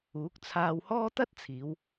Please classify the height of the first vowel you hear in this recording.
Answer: high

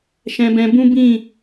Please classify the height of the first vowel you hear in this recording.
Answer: mid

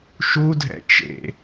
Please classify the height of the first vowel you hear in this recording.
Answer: high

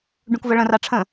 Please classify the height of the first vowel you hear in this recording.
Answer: high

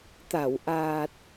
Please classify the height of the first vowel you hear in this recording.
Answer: low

